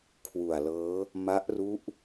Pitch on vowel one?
low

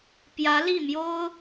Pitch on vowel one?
rising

